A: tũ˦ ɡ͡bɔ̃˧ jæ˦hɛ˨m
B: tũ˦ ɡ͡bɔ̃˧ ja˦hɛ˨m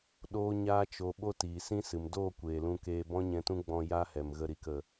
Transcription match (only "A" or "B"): B